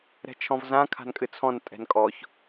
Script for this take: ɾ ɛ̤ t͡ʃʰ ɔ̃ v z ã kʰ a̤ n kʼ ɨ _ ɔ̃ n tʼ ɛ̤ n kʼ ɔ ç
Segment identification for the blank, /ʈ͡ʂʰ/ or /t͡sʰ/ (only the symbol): t͡sʰ